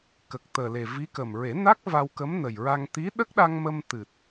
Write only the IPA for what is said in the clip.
k ə˨˩ k̚ t̪ əː˨˩ l e˨˩ v i˧˥ k ə˨˩ m ɹ e˨˩˦ n a˦˥ k̚ v a˧ w k ə˧˥ m n ə˨˩ j ɹ a˧ ŋ t̪ i˧˥ ɗ ə˦˥ k̚ ɗ a˧ ŋ m ə˧ m t̪ ɨ˨˩ t̚

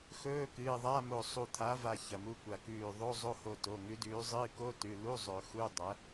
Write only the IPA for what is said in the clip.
x ɵː˧˥˧ k ɨː˩˧˩ ðˤ a˧˥˧ m o˧˩ sˤ u˧˩ t̪ʰ a˨˥ v a˧˩ ç ɐ˩˧˩ m u˧˥˧ kʷ a˧˩ k ʉː˧˩ ðˤ o˧˥˧ zˤ o˧˥˧ h o˧˩ t o˩˧˩ ŋ ʉ˨˥ d ʉː˨˥ zˤ ɨː˧˥˧ k o˧˥˧ t ʉ˩˧˩ l u˧˥˧ zˤ ɵ˨˩˦ x u˧˥˧ dˤ ɐ˨˥

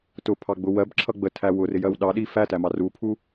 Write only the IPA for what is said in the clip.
t ʊ pʰ ɑ ɡ͡b ʊ w ɜ b ǁʰ ʌ ɡ͡b ə tʰ æ w ʊ r ɪ j ɜ w ɗ ɑ ɗ i f æ t æ m ɑ r u pʰ u

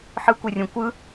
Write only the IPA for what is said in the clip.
ħ ɯ kʷ e rʲ õ kʷ ɯ

